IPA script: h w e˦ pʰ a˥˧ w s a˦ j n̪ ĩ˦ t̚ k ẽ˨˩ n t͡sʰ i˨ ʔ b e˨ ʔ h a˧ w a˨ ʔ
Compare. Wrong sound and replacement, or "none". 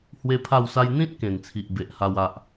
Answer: none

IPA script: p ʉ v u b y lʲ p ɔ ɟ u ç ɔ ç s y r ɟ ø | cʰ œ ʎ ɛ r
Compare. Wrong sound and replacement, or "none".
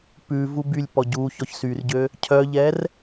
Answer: none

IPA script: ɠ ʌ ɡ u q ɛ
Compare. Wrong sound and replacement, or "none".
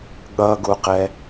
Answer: none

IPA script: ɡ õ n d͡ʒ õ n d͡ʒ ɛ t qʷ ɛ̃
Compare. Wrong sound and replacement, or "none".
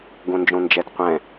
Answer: none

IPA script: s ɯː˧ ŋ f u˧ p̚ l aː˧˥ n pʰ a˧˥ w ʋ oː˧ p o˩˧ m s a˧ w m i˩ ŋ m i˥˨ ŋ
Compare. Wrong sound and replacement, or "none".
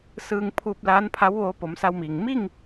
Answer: f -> pʰ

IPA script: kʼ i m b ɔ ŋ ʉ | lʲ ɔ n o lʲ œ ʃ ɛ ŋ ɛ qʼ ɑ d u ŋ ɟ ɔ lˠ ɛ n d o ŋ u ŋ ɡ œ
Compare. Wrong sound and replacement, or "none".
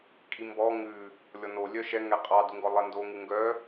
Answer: ɟ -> ɡ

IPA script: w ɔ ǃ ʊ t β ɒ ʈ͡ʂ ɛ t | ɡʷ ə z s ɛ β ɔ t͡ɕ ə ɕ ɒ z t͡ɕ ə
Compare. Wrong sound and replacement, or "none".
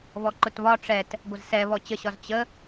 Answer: w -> β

